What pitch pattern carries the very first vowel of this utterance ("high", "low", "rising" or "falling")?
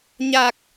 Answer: low